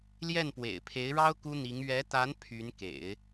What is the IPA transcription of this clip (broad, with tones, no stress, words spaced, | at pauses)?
ljɛ˥˩npwḛ˨˩ɪ̯pʰe˧˥ɪ̯ɻɑ˥ʊ̯ ku˥n̪i˧˥ŋ ɥɛ˧˥t̪a˧˥n pʰy˧˥nkḛ˨˩˦ɪ̯